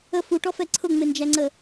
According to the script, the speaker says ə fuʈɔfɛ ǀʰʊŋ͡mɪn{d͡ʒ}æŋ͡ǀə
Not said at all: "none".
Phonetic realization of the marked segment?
d͡ʒ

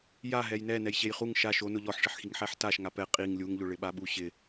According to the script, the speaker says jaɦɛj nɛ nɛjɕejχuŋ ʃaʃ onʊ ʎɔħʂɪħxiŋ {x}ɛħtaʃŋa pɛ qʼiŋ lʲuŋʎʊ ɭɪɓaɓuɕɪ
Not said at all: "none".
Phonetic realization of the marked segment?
ħ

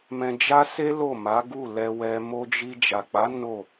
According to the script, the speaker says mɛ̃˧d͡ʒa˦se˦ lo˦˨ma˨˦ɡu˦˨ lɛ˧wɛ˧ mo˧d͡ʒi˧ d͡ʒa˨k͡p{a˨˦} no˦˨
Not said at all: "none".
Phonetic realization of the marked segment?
a˨˦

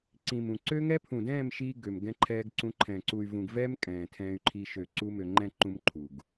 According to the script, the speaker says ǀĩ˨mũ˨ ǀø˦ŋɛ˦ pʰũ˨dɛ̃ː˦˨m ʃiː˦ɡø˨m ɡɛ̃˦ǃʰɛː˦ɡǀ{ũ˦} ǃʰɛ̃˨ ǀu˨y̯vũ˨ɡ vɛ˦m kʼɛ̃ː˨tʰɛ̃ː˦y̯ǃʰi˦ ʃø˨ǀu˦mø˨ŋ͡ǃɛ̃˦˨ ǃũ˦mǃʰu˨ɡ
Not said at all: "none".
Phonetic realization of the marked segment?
ũ˦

